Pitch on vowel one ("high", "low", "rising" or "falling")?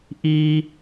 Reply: high